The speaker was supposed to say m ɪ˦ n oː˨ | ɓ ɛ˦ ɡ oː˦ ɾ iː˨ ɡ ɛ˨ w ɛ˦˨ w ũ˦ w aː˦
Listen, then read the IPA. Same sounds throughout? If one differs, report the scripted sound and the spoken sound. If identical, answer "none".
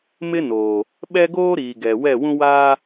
none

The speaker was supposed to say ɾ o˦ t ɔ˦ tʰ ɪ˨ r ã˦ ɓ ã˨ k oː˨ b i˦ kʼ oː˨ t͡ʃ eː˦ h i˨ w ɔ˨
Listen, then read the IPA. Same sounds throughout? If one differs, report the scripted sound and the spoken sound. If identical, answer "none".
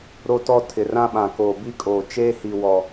none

